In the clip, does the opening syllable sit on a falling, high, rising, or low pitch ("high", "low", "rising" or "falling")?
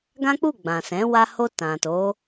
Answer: high